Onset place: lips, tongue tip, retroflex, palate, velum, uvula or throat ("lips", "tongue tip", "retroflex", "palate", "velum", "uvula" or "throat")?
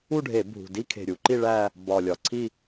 retroflex